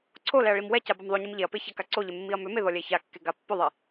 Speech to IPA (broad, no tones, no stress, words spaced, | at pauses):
ǀʰolɛɐ̯ ɭimwɛca bamðˤoɲim ʎeɐ̯pe çakaǀoʎe mːiɐ̯mʏme ðɔlʲɛçakːe ɡapːʏðˤi